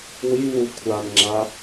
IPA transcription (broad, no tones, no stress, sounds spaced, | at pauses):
w i β u kʷʰ a n ŋ͡ǁ a